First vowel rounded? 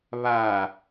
no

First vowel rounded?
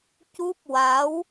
yes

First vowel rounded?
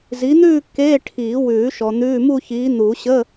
no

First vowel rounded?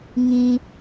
no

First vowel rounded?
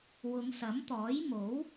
yes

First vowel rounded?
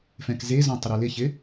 no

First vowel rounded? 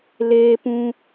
no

